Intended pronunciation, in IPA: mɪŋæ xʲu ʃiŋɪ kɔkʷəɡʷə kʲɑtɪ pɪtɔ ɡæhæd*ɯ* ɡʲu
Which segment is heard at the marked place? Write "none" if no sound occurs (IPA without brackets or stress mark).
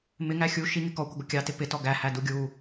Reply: u